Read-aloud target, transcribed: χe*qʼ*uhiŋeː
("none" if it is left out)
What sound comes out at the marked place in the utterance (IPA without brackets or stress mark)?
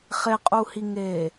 qʼ